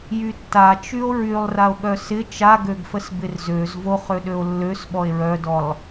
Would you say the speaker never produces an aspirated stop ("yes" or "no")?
yes